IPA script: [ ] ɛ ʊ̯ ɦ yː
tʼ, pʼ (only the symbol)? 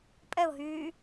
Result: pʼ